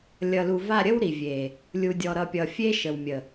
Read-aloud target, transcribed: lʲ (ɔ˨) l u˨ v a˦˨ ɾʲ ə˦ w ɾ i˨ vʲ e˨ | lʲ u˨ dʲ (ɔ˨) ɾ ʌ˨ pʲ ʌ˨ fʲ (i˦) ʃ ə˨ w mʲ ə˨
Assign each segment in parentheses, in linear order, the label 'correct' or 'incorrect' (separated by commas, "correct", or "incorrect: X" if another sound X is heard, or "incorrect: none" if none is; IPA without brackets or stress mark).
incorrect: ʌ˨, correct, incorrect: e˦